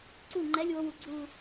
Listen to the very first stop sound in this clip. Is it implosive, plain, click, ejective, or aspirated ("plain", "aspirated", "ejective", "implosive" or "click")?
click